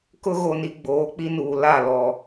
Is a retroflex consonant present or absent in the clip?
absent